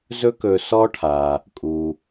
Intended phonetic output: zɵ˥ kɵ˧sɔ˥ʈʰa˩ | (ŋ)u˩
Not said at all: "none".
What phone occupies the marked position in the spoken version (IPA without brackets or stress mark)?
kʼ